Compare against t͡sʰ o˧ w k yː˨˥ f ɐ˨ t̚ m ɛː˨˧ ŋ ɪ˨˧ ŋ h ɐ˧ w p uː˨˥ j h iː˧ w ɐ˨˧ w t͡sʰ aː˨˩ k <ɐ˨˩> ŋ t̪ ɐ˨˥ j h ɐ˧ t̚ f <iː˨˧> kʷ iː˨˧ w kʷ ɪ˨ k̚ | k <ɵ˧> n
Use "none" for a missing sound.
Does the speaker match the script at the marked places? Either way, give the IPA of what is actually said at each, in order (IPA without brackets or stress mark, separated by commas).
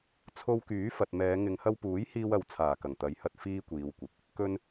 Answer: ɐ˨˩, iː˥, ɵ˥